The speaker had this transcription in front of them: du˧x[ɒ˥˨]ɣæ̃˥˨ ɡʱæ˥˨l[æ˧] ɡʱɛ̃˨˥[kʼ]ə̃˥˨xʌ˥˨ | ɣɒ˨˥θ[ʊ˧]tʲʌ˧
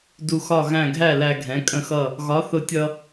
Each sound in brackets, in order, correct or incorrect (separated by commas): correct, correct, correct, correct